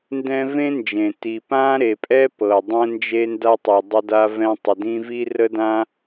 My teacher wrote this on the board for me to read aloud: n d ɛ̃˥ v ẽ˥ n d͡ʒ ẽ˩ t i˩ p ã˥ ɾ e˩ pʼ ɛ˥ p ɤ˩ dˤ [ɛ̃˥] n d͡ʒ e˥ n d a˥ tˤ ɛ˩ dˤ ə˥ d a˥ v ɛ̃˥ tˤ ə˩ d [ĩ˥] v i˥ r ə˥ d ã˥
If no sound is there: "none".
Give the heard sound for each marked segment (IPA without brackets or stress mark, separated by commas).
ɛ̃˥, ĩ˥